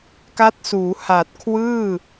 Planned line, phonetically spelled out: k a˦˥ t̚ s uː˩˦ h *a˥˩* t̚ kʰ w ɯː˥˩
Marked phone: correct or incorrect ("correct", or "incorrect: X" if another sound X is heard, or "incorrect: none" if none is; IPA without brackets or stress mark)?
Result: incorrect: a˨˩